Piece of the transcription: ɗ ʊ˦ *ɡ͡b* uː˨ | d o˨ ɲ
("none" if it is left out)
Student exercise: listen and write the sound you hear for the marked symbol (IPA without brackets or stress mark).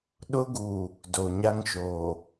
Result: ɡ